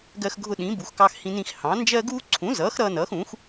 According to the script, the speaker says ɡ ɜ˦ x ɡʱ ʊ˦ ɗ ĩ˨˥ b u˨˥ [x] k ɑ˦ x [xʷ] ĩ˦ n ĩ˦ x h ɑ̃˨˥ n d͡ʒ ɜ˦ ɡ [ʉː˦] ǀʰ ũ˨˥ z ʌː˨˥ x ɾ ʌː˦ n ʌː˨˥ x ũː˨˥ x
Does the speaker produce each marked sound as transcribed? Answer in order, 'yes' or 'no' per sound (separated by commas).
yes, no, no